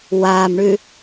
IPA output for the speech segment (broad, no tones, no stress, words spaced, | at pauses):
waːmɳʉ